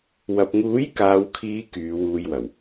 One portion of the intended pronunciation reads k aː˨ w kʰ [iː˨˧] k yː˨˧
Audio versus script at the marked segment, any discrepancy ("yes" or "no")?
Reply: no